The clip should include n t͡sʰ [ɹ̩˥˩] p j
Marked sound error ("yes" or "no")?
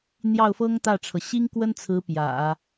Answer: yes